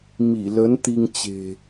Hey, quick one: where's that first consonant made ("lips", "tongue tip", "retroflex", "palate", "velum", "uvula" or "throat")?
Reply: lips